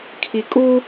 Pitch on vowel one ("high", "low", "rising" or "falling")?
low